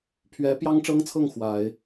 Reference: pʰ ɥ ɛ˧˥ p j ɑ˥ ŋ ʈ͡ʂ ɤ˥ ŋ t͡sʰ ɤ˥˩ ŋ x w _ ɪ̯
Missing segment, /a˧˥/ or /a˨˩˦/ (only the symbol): a˨˩˦